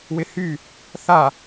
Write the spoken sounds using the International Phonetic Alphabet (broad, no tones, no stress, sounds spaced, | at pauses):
w ɪ h y | θ a